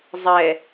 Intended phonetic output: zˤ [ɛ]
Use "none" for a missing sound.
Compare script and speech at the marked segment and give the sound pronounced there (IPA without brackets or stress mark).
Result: ɛ